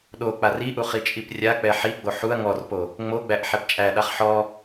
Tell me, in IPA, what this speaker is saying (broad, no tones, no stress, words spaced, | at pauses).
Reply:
ɗok͡par iʔu χit͡ʃʼiprʲak͡pɛ ħiɡ͡bo ħuɐ̯ ŋɔrpo | ŋ͡moɡ͡bæʔ ħɛpt͡ʃʼæɗaχ ħɔ